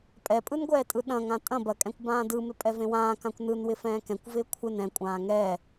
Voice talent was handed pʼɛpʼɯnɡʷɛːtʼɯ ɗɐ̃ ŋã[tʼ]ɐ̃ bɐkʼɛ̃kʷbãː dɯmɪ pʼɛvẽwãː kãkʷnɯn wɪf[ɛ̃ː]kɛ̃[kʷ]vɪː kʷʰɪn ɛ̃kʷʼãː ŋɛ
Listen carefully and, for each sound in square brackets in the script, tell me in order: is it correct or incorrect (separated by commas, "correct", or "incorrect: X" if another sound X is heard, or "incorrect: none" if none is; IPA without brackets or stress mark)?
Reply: correct, correct, correct